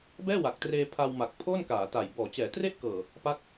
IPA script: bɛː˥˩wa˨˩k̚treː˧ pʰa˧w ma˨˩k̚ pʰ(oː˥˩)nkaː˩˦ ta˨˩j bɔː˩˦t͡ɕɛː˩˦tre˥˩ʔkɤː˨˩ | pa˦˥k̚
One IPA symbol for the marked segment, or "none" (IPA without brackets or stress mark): oː˥˩